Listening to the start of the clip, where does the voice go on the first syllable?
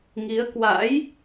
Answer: rising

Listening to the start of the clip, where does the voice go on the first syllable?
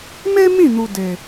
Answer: high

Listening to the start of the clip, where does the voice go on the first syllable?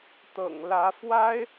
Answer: low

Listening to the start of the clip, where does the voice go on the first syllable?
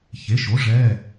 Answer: rising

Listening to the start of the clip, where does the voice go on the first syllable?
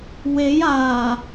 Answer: rising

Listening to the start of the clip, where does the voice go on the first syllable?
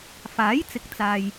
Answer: rising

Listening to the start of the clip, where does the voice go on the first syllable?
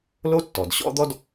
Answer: high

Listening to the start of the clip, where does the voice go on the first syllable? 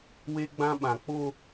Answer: high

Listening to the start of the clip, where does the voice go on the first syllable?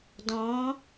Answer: rising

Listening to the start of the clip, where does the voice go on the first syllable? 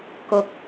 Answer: low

